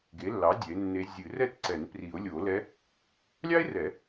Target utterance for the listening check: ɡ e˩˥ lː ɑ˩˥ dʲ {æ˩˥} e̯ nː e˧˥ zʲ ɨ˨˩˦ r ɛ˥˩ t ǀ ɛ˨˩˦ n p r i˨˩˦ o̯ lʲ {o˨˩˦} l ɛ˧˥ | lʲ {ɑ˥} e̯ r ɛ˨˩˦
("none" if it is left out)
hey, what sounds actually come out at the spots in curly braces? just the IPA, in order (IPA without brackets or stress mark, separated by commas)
ɛ˩˥, o˨˩˦, ɑ˥